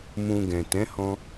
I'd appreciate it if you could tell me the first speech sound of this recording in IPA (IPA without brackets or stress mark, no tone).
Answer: m